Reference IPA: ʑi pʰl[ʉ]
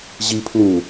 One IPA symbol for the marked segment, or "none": u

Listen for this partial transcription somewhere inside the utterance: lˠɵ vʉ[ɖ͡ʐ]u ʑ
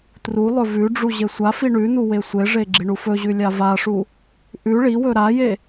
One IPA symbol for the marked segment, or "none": ɖ͡ʐ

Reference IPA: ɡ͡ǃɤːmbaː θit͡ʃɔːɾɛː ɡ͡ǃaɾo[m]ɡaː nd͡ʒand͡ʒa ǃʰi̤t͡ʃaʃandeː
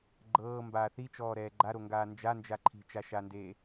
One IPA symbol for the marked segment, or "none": ŋ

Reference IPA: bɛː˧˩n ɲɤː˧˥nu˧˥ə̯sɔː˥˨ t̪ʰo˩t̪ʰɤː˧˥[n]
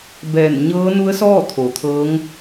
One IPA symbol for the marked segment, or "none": ŋ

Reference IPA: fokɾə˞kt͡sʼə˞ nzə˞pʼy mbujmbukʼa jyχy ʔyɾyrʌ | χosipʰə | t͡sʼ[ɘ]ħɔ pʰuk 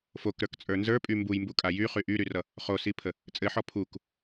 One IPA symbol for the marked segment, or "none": ɘ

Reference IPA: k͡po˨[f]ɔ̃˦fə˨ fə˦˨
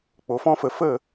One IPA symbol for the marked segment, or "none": f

